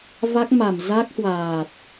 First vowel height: low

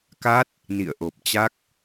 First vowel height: low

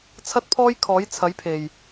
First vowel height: low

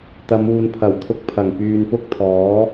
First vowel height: low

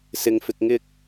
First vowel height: high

